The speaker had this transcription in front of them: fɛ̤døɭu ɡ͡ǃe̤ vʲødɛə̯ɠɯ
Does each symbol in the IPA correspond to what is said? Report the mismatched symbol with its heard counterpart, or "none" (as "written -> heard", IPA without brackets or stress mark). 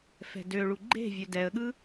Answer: none